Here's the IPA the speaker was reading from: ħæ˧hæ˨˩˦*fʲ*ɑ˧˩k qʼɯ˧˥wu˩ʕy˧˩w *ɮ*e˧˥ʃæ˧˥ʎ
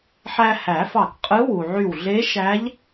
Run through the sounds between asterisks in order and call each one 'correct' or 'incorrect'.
incorrect: f, correct

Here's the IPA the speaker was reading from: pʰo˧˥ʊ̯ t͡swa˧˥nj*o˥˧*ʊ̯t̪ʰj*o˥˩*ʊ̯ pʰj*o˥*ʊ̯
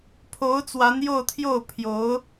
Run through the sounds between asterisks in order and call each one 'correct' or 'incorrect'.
correct, correct, incorrect: o˧˥

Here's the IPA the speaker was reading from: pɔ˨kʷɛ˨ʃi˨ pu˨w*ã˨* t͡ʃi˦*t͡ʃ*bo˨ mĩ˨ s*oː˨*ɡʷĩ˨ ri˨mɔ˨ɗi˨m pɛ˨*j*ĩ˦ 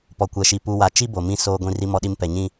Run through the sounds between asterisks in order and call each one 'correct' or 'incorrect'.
incorrect: a˨, incorrect: none, correct, incorrect: ɲ

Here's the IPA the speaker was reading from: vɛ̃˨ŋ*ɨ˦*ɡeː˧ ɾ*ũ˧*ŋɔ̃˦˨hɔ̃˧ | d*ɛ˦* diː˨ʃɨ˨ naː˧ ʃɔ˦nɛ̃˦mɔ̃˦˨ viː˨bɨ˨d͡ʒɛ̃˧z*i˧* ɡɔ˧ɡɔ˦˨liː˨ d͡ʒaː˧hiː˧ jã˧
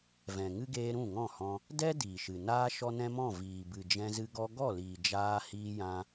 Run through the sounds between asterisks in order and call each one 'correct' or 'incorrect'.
correct, incorrect: ũ˦˨, correct, incorrect: ɨ˧

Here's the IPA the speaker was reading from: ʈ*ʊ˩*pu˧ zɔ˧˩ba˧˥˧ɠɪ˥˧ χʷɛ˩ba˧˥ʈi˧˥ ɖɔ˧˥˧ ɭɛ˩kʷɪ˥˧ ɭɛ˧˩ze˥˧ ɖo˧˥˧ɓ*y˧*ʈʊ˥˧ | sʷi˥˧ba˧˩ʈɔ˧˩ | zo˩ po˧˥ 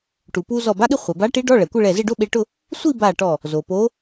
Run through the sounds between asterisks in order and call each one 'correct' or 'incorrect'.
incorrect: u˩, incorrect: e˧

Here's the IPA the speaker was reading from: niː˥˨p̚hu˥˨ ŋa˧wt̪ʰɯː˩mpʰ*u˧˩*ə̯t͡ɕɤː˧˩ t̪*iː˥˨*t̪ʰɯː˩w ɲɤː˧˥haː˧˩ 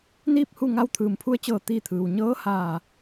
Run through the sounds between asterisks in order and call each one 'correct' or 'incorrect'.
incorrect: u˧, correct

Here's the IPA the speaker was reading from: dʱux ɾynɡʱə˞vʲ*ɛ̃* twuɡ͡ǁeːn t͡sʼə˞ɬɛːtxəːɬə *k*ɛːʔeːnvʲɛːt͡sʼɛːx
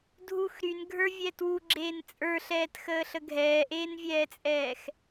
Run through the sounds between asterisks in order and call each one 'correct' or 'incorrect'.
incorrect: ɛ, incorrect: ɡʱ

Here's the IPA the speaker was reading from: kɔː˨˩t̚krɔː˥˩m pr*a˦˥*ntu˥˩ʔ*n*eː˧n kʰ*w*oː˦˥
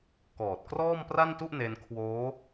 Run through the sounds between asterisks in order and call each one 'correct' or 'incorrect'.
incorrect: a˥˩, correct, correct

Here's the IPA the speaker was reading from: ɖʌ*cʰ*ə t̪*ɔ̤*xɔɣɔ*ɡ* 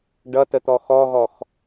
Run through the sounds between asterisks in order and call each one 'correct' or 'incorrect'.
incorrect: t, incorrect: ɔ, incorrect: x

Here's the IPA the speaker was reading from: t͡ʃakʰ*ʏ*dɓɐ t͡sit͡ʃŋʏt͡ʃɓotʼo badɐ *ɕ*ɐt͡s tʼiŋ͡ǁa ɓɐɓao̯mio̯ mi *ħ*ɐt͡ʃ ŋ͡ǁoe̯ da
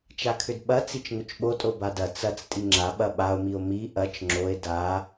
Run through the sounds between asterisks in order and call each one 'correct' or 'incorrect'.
correct, incorrect: t͡s, incorrect: ʔ

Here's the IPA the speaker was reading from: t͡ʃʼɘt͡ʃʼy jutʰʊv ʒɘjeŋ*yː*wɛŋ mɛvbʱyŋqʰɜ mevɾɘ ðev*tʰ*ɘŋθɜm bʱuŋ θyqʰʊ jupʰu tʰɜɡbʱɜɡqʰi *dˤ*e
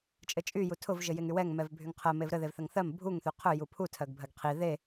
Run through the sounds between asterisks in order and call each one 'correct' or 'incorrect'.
incorrect: y, incorrect: θ, incorrect: ð

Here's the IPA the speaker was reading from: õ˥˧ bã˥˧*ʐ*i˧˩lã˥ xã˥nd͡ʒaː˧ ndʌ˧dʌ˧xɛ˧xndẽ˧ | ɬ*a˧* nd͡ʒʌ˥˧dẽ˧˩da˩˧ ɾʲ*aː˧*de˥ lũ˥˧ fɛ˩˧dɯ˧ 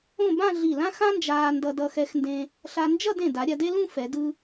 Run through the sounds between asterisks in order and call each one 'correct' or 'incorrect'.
incorrect: ɮ, correct, incorrect: a˧

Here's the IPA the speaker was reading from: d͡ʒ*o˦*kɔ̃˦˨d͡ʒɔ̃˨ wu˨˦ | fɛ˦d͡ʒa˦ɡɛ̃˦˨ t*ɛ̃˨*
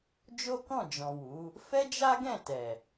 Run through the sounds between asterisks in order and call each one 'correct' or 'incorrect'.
correct, incorrect: ɛ˨

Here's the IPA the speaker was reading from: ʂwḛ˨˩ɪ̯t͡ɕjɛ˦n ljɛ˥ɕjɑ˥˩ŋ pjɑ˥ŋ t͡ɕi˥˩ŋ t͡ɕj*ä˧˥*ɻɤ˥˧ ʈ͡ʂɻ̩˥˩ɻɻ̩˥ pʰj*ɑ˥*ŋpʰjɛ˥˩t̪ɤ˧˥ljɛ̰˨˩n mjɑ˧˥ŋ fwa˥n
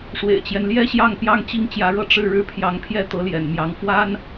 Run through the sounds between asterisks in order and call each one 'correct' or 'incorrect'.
correct, incorrect: ɑ˧˥

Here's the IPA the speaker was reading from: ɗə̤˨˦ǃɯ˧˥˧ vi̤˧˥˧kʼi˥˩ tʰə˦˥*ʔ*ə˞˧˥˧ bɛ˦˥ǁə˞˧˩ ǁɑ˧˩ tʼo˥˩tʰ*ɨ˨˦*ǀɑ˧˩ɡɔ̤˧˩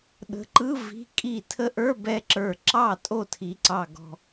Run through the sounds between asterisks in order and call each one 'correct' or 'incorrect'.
correct, incorrect: i˨˦

